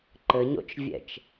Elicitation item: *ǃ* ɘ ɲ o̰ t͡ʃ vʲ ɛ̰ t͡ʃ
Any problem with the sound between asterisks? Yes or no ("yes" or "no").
no